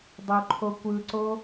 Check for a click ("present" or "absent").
present